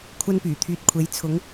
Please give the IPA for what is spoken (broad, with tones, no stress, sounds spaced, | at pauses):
kʷʰ ɐ˧ n p yː˨˩ t̪ʰ yː˨ t̚ kʷʰ e˨˥ j t͡sʰ ʊ˨˧ ŋ